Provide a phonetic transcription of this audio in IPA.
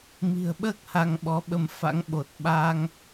m i̤˨˩ ə̯ ɓ əː˦˥ k̚ h a˧ ŋ ɓ ɔ˨˦ ɓ ə˧ m f a̰˧˥ ŋ ɓ o˨˩ t̚ ɓ a˧ ŋ

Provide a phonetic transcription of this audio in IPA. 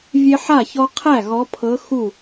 vʲ e˦ ħ a˥˩ ç ɔ˦ qʰ æ˥˩ ɣ ɔ˨˦ pʰ ɤ˨˦ x u˥˩

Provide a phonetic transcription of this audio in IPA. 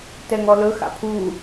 t ɛ ŋ ɔ l ɵ x a̰ pʰ u

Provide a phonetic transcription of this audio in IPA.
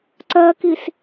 ǀ ɜ k i s

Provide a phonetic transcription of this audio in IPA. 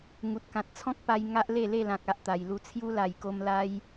ŋ u˨ t̚ k ã˨ t̚ t͡sʰ ɔ̃˦ k̚ p a˧ j ŋ a˦ ʔ l e˥˧ l e˥˧ l ã˨ k̚ a˨ ʔ t̪ a˨˩ j l u˧ t͡sʰ j u˦ l a˨˩ j k o˧ m l a˧ j

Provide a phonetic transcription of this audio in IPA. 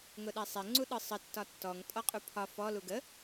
ŋ ʊ ɗ ɛ sˤ ɛ ŋ͡ǀ u ɗ ɯ sˤ ə tː ɒ tː ɔ ŋ tʼ ɔ qʼ u pʰ ɒ f ɔ l u ɡ ə

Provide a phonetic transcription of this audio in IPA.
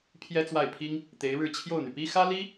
pʰ j ɛ˥ t͡s w a˥˩ ɪ̯ pʰ i˥ ŋ | t̪ e˧˥ ɪ̯ ɻ ɻ̩˥˧ t͡ɕʰ j o˥˩ ʊ̯ n̪ y˩ p i˥ x ä˥ l i˥

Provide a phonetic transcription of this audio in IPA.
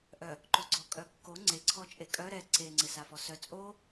ʔ œ | ǃ o ɡ͡ǀ ɔ kʼ œ kː o ŋ͡ǀ e ǀʰ ɔ t͡ʃʼ e kʼ œ ɾ ɛ ǀ e ŋ͡ǀ ɪ s a f ɔ s œ t͡sʼ o

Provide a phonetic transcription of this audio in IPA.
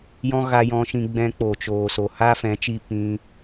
j ɔ̃˦ ɣ a˧ j ɔ̃˧ ʃ ĩ˧ ɡ͡b ɛ̃˧ k͡p o˨ t͡ʃ oː˨ s o˨ h a˦ f ɛ̃˨˦ t͡ʃ i˧ p ĩ˧

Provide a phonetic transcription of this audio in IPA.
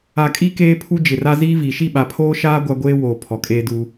a˨ kʼ i˦ k eː˦ pʰ u˦ d͡ʒ ɪ˨ r a˦ z iː˦ v i˨ ʃ i˦˨ ɓ a˨ pʰ oː˦ ʃ aː˦ ɡʷ a˦ ɡʷ eː˦ w oː˨ pʰ ɔ˨ kʼ eː˦ d uː˦

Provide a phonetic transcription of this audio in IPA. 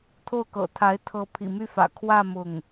t̪ʰ o˥˩ ʊ̯ k ɤ̰˨˩ t̪ʰ a˧˥ ɪ̯ t̪ʰ ɤ˧˥ pʰ ḭ˨˩ m y˥˩ f ä̰˨˩ kʰ w ä˥˧ m ʊ˥˩ ŋ

